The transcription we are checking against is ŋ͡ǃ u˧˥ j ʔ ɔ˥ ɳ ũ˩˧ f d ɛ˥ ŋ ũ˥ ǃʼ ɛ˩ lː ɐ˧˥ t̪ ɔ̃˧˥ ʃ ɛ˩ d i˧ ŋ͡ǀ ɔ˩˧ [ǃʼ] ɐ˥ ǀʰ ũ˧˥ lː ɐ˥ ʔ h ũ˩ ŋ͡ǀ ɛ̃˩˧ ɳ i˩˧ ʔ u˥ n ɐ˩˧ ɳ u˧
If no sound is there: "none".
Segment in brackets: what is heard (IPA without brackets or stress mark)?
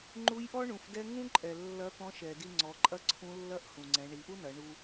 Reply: ǃʼ